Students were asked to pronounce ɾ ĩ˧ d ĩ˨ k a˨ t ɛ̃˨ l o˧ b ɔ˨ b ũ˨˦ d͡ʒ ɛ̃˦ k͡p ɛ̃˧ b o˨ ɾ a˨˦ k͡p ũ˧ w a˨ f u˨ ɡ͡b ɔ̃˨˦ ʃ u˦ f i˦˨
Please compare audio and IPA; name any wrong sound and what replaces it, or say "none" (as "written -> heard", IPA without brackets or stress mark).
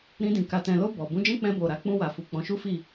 ɡ͡b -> k͡p